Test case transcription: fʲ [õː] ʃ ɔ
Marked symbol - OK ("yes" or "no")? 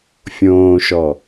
yes